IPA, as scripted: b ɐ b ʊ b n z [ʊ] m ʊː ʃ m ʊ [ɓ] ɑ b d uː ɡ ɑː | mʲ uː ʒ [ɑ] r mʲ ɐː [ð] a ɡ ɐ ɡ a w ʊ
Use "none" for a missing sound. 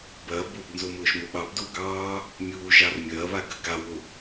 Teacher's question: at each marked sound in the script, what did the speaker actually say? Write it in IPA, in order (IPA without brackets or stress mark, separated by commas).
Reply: ʊ, ɓ, ɑ, β